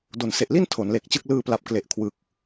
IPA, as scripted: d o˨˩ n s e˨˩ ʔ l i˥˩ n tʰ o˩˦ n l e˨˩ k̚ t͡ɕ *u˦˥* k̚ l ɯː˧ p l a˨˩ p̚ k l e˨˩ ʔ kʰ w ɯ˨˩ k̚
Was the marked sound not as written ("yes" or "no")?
yes